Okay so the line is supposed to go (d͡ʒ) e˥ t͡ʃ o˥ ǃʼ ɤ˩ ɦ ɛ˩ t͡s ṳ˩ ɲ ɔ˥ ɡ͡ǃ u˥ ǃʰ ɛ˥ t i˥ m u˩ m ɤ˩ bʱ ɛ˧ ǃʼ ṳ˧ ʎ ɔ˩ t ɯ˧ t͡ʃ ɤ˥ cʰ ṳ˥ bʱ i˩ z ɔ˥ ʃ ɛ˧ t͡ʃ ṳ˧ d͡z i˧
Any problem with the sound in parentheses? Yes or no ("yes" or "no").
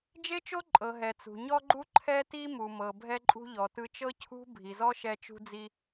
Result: no